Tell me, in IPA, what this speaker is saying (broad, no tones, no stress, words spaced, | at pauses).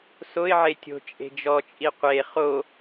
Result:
soɪ̯ʕe tʲo̤ t͡ʃʼe̤d͡ʒɔt͡ʃʼi qʷe χo